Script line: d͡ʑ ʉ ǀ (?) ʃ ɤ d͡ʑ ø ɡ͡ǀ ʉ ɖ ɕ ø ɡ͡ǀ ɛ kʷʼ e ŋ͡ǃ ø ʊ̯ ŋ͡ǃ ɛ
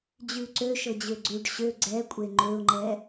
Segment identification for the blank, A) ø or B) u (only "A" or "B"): A